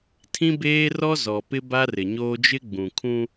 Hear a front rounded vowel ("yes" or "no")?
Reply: no